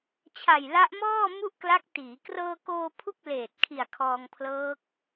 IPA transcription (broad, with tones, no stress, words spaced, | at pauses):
t͡ɕʰa˨˩jla˦˥ʔmɔː˥˩ mu˥˩ʔkla˦˥k̚tiː˩˦ krɤː˧koː˧ pʰu˥˩k̚leː˨˩t̚kʰi˨˩a̯ kʰɔː˧ŋpʰlɤː˦˥k̚